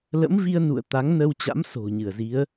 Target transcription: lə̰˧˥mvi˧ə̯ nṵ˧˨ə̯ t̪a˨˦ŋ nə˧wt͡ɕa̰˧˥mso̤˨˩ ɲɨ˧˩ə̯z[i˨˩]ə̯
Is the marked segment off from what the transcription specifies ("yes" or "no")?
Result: yes